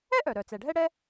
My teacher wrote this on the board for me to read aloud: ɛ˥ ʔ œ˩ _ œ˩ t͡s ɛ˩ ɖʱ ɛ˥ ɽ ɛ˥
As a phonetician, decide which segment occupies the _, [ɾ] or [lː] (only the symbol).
ɾ